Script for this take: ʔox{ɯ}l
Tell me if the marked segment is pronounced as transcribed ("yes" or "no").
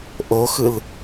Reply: yes